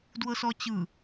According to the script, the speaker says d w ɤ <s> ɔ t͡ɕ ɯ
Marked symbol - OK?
yes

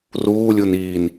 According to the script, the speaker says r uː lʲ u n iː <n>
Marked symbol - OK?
yes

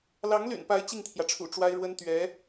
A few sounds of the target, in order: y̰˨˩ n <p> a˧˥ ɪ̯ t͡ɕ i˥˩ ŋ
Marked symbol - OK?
yes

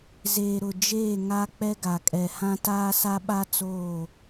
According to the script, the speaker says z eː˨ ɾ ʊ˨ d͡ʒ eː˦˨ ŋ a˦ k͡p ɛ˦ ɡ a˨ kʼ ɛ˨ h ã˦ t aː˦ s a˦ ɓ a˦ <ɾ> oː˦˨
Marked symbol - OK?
no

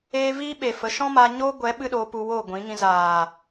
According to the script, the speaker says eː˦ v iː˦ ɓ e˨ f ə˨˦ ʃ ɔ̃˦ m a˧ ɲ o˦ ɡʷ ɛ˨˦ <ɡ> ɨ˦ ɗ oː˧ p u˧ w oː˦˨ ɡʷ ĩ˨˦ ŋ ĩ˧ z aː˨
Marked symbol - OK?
no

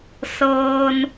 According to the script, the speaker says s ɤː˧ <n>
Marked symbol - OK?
yes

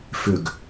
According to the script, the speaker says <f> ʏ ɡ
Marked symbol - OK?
yes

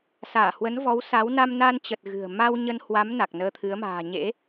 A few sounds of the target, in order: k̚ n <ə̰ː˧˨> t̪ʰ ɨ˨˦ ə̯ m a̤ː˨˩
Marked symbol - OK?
no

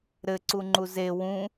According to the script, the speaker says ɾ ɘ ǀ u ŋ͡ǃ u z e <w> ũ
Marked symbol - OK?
yes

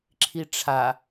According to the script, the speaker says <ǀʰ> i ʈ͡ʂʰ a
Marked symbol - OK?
no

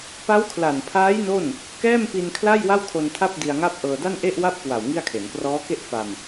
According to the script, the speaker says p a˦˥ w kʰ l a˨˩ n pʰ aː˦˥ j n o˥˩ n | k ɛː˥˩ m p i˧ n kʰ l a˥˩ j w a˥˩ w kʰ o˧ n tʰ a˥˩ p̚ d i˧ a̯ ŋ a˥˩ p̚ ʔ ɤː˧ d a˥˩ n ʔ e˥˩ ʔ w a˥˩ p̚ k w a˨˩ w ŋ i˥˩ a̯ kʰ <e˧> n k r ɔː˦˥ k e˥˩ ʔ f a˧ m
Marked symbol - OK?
no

